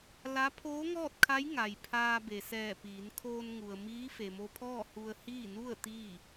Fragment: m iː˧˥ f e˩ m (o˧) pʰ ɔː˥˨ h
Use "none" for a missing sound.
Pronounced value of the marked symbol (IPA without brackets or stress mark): o˧